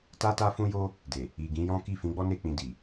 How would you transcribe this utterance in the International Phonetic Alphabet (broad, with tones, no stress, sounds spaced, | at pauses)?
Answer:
t a˦ t a˦ f ũ˦ j o˦ | d e˨ | i˨ ɡ ĩ˨˦ j ɔ̃˦ k i˦˨ f ĩ˨˦ ɡ͡b ɔ˦ n e˦˨ k͡p ĩ˧ d i˨